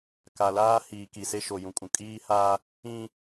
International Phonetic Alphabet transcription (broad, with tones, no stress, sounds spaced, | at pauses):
k a˨ l aː˦ h iː˨ k i˨ s e˦ ʃ o˨ j ũ˨ kʼ ũ˨ kʼ iː˦ h aː˦ | ĩ˦